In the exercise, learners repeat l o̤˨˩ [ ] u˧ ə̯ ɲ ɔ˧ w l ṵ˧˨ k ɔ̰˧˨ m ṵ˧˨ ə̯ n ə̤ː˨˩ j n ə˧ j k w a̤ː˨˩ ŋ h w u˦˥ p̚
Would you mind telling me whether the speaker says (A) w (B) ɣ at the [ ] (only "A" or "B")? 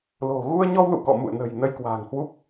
B